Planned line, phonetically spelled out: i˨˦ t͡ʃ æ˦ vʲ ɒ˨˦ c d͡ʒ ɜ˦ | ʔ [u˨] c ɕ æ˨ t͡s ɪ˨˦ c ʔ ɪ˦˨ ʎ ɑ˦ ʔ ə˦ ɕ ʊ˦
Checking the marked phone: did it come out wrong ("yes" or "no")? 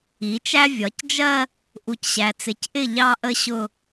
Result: no